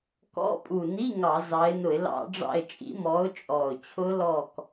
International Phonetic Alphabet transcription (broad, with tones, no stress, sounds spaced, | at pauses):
k ɔ̰˧˥˧ pʼ u˨˩ n i˧˥˧ ŋ ɑ˧˩˧ z ɑ˨˦ ɪ̯ n ʊ˧˩˧ ɪ̯ l ɑ̰˧˩˧ ɖ͡ʐ ɑ̰˦˨ ɪ̯ t͡ʃʼ ḭ˨˦ m ɔ˨˦ ʊ̯ t͡ʃʼ ɔ˨˩ ʊ̯ t͡ɕʰ ʊ˦˥ l ɔ˦˨ k